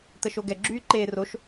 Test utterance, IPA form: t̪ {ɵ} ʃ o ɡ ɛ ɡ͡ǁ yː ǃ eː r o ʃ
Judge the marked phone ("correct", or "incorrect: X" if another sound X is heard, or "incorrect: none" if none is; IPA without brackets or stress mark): incorrect: ə